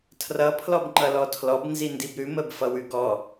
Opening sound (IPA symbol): tʰ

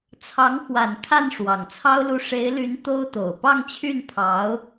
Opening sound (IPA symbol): t͡sʰ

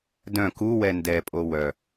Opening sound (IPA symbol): d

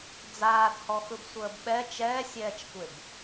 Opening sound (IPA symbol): d͡z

